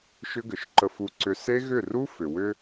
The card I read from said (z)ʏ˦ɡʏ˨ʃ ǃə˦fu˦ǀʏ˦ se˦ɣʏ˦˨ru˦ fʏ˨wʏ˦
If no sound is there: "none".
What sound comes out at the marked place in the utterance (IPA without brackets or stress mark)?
ʃ